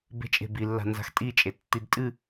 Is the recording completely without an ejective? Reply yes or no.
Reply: no